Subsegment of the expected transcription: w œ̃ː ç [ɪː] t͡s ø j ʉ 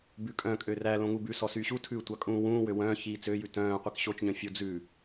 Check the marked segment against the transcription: incorrect: iː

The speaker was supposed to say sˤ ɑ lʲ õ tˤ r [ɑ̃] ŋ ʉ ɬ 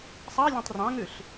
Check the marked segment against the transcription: correct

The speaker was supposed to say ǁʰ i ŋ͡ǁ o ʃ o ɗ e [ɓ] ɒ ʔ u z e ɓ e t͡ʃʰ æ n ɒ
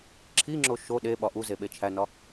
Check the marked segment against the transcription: correct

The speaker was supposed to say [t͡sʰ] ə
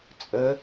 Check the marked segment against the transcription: incorrect: t͡sʼ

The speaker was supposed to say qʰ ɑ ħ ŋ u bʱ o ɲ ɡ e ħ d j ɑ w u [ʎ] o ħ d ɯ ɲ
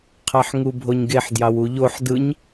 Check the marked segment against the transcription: correct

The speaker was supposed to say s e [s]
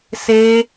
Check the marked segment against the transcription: incorrect: none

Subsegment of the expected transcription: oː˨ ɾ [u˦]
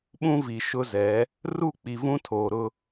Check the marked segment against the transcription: incorrect: ʊ˦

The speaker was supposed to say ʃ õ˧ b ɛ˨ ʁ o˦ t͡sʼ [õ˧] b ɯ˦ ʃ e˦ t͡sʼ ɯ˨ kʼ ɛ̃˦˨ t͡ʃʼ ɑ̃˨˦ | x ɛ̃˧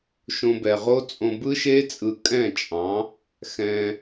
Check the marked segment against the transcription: correct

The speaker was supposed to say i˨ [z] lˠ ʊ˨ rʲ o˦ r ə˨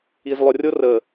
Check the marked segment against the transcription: correct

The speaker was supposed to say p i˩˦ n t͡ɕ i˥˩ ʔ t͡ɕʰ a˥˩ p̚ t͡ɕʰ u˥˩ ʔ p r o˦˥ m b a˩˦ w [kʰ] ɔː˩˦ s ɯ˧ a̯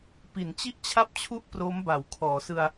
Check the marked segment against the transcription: correct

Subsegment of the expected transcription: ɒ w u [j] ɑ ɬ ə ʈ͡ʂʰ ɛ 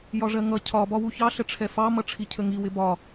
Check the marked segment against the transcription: incorrect: ç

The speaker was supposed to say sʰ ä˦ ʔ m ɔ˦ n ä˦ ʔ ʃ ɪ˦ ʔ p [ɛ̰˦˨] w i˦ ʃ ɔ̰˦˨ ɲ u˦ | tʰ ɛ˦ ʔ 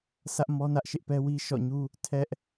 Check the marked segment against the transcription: incorrect: ɛ˦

